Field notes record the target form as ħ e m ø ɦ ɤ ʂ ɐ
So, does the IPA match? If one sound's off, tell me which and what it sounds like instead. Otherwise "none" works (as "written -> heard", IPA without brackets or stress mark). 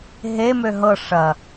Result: ħ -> ɦ